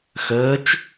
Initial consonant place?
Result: velar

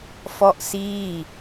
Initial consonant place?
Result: labial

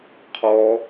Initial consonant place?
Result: uvular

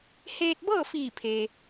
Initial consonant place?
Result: glottal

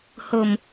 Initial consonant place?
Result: glottal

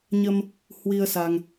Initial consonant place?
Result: palatal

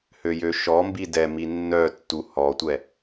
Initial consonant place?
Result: glottal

